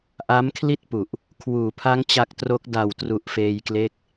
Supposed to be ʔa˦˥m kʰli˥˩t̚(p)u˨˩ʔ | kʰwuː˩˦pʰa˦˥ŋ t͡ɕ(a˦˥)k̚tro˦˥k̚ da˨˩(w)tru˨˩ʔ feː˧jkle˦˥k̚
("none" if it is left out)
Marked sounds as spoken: p, a˦˥, w

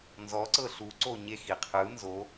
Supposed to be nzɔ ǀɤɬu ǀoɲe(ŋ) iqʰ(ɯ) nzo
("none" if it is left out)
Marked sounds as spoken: x, ɯ

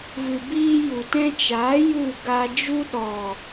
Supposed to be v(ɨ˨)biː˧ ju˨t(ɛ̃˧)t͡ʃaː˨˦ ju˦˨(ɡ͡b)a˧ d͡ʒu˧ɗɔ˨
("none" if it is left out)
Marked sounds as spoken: ɨ˨, ɛ̃˧, ɡ

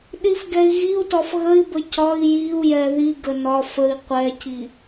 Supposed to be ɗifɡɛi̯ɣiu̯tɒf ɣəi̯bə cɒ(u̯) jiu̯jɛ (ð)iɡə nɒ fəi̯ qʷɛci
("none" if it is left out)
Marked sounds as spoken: i̯, ð

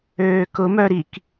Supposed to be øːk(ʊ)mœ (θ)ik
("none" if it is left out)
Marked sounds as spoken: ʊ, ɾ

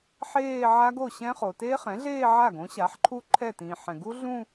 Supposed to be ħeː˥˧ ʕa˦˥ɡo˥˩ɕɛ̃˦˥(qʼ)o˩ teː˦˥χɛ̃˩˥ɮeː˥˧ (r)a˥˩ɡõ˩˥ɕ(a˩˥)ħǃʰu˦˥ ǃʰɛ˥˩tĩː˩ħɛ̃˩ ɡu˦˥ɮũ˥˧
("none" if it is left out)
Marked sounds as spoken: χ, ʕ, a˩˥

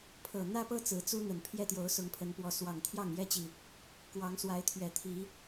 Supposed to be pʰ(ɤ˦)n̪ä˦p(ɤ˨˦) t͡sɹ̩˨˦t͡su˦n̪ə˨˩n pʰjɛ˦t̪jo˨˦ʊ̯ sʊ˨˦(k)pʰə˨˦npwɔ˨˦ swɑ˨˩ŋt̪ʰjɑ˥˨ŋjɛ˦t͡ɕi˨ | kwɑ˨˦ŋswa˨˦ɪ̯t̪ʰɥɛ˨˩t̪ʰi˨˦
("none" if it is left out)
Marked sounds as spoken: ɤ˨˩, ɤ˦, ŋ

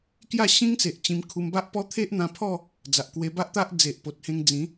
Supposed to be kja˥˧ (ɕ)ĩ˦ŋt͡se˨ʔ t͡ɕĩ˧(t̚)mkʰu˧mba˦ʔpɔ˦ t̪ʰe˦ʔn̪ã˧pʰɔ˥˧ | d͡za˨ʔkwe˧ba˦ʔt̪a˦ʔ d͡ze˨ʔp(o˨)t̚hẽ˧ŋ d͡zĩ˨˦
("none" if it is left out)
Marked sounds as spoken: ɕ, none, o˨

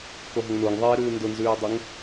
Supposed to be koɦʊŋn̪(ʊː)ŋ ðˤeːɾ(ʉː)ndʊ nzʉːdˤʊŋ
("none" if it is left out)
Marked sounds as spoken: ʊː, ʉː

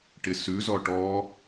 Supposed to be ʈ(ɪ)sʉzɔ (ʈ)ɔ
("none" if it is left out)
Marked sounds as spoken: ɪ, ʈ

